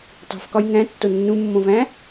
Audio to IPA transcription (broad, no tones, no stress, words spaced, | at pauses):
tˤṳfkɒj ŋæ̃tːo nːũmːõvæ̃